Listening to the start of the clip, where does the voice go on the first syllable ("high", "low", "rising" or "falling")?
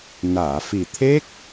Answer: low